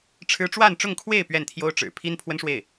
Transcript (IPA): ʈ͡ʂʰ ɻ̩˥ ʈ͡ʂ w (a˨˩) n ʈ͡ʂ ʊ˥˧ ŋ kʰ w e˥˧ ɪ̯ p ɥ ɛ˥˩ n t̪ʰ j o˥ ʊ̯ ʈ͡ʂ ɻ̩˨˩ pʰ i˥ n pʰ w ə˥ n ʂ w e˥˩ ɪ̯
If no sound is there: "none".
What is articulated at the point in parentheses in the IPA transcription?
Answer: a˥˧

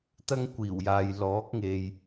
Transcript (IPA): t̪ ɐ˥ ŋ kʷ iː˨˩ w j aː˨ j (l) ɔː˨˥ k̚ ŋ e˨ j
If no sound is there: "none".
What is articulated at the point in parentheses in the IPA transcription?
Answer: l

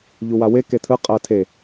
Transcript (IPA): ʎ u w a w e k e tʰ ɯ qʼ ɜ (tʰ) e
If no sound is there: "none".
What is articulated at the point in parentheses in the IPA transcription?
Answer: tʰ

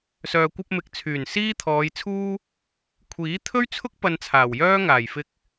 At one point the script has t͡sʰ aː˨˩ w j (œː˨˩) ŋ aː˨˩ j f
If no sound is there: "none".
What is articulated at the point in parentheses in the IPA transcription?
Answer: œː˥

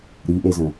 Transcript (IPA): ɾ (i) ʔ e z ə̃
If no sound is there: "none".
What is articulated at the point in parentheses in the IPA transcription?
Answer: i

